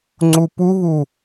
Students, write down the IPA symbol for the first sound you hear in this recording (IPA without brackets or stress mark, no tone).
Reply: ŋ͡ǀ